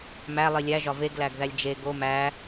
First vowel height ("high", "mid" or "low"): low